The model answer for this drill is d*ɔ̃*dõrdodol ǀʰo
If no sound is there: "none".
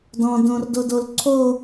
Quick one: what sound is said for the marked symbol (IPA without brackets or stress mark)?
ɔ̃